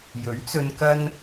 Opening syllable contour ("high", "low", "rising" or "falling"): rising